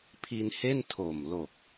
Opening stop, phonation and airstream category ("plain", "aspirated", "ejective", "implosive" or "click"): aspirated